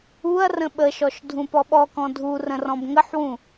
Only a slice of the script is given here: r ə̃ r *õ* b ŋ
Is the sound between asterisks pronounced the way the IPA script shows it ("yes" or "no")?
no